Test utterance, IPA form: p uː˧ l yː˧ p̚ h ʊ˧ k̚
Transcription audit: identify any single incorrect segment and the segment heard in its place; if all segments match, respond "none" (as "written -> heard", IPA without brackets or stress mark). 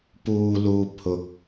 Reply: yː˧ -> uː˧